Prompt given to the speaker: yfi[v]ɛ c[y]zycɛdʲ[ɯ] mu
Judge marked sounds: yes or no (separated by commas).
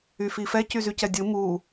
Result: no, yes, yes